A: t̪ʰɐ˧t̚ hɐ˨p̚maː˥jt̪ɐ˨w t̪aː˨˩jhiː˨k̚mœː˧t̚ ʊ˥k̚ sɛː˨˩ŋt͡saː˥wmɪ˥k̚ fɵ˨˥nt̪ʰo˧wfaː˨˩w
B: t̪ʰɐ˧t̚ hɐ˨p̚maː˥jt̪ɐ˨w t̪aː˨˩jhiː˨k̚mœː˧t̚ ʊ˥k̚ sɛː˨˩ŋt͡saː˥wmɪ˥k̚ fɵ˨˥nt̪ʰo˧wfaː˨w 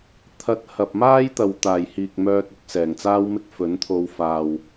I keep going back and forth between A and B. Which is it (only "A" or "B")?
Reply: B